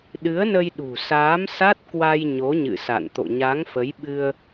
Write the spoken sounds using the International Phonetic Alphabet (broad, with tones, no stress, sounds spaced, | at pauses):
ɗ ɨ˨˦ ə̯ n ə˧ j ɗ ṳ˨˩ s aː˨˦ m s a˦˥ t̚ k w a˧ j ɲ o˨˦ ɲ ɨ̰˧˨ s a̰˧˨ n t̪ o̰˧˨ ɲ a˨˦ ŋ f ə˨˦ j ɓ ɨ˧ ə̯